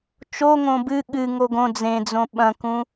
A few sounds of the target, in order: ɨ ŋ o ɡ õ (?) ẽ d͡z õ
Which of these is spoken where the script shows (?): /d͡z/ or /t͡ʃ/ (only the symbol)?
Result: d͡z